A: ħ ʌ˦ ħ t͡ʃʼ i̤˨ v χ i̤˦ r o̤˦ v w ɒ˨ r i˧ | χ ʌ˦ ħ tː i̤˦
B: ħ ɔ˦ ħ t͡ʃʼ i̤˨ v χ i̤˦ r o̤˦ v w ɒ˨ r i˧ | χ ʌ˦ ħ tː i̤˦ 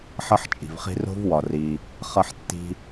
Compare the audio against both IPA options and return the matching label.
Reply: A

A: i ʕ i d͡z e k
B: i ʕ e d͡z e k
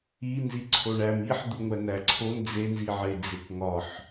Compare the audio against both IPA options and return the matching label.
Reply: B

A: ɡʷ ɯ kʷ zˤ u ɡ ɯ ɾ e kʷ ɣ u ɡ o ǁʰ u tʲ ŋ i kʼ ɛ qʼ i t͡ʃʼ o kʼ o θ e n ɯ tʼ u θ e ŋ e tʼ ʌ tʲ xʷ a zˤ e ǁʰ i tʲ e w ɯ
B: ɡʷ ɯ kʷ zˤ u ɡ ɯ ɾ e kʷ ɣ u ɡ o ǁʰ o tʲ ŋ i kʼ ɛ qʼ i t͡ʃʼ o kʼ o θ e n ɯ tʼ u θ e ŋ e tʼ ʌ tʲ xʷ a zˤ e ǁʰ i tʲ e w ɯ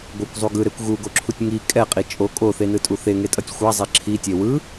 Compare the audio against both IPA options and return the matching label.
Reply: A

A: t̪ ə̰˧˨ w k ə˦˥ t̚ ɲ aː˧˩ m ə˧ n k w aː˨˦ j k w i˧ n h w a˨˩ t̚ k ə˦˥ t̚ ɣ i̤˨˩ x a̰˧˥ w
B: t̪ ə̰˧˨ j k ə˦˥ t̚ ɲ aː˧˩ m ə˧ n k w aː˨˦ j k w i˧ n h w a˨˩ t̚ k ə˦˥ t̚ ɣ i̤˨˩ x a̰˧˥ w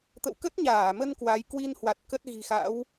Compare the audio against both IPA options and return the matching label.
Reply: A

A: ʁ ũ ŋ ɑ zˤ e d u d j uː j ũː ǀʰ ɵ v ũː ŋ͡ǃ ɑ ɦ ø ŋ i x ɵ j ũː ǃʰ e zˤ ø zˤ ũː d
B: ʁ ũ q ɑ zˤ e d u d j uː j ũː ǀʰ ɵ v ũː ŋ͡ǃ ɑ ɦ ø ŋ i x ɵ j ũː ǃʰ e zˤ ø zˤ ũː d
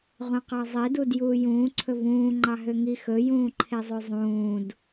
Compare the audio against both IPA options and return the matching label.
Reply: B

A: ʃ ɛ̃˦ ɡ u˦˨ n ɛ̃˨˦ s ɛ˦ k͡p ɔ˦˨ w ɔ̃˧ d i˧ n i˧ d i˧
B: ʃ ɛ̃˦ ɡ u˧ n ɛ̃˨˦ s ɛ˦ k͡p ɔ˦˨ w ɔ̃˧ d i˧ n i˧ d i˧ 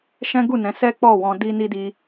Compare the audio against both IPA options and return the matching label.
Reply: A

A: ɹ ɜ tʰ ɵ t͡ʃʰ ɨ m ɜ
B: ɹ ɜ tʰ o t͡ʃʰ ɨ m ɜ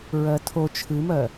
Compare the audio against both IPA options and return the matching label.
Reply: B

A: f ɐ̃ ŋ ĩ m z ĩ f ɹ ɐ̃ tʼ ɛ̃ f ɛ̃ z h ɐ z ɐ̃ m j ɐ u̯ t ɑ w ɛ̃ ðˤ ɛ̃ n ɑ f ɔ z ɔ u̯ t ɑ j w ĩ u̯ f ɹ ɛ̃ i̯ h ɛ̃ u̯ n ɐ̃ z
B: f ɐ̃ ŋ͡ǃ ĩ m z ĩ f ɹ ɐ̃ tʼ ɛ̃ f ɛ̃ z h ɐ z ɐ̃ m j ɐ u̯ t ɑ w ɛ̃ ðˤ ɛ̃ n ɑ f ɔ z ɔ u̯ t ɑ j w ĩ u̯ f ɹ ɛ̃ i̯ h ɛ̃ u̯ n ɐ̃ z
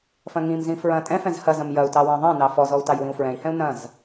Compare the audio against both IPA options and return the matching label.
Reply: A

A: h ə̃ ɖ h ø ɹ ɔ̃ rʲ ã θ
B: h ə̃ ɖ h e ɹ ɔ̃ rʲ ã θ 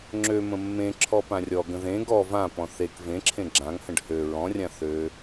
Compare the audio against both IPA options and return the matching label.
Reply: A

